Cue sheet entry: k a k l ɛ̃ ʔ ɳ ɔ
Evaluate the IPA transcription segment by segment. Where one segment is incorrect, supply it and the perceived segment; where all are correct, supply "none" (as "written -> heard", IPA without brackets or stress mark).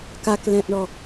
none